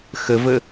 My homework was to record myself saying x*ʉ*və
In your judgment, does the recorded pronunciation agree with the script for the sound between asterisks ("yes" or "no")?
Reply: no